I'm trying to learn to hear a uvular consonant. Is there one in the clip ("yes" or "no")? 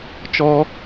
no